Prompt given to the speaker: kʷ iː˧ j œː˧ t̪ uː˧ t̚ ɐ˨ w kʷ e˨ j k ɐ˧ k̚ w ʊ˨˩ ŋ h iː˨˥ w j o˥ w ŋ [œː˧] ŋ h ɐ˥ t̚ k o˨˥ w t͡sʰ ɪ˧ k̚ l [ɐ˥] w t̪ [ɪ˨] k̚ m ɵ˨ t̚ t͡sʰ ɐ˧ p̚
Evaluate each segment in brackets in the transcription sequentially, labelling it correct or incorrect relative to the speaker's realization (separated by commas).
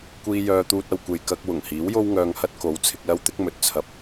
correct, correct, incorrect